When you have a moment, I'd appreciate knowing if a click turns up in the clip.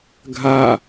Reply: no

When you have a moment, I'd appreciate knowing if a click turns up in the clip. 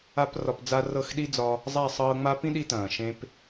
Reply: no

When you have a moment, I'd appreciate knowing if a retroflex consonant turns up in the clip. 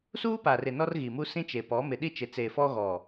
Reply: no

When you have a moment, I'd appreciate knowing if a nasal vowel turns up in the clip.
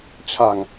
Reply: no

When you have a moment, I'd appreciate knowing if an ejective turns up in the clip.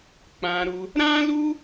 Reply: no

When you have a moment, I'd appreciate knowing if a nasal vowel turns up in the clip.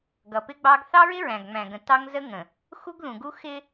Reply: yes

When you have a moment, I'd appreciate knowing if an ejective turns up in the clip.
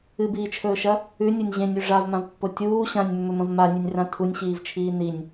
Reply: no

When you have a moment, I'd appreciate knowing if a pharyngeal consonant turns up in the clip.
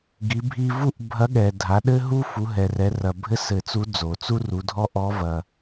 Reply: no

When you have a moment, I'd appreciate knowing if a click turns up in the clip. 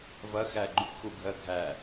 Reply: yes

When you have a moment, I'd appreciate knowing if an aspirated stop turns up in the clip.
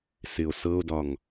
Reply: no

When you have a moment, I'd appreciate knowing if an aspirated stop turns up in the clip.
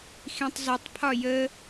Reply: yes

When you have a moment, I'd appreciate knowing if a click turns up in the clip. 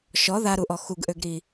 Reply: no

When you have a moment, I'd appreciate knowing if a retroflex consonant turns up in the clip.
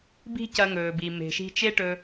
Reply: yes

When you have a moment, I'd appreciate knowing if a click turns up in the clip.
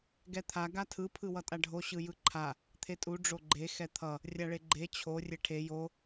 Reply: yes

